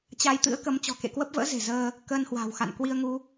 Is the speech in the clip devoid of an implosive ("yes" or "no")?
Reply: yes